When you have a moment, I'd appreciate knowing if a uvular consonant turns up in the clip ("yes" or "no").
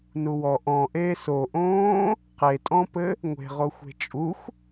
yes